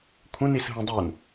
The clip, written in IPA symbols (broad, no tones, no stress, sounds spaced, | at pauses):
kʷʰ ə̃ n i s ɦ ũ dˤ u n